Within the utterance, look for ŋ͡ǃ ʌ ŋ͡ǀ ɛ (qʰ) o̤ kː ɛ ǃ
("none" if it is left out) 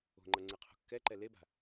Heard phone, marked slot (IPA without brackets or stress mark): qʰ